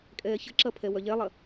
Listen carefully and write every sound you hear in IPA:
kʼ ɛː ç ə ǁ ɐ pʰ ɛ w œ ʎ ɛ lˠ ɐ

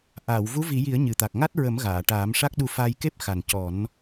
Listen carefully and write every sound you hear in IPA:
ʔ aː˨˩˨ w v u˧˥ v i˨˩˦ j i˨˩˦ ə̯ ɲ ɨ˨˩ t̪ a˨˩ k̚ ŋ a˦˥ t̚ ɹ ə˨˩˦ m ɣ aː˨˩˨ ʈ aː˨˩˦ m ʂ a˦˥ k̚ ɗ u˧ f a˧ j k e˦˥ p̚ x a˨˩ n c ɔ˨˩˦ n

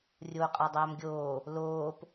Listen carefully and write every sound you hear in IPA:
rʲ oː qʼ a dˤ æː m ɡʲ oː | l oː p

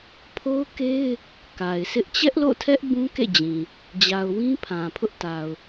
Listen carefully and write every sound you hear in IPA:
pʰ o˦ ʊ̯ k e˦ ɪ̯ | k a˨ ɪ̯ sʰ ɪ˦ ʔ t͡ɕ ɛ˦ ʔ l o̰˦˨ tʰ ɛ˦ ʔ b ũ˦ k ḛ˦˨ d͡ʑ ĩ˨ | d͡ʑ a˨ ʊ̯ w ĩ˦ pʰ ã˨ pʰ ʊ˦ ʔ t a˨ ʊ̯

